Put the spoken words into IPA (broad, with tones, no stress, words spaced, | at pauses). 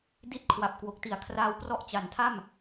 di˦˥t̚ kʰwa˨˩p̚kwo˨˩k̚ti˨˩a̯ kʰraː˦˥wprɔ˦˥ʔt͡ɕa˩˦ntʰa˥˩m